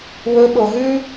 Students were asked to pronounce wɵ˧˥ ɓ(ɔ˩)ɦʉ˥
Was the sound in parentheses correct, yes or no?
no